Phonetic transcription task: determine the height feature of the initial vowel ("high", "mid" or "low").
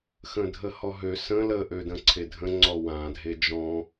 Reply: mid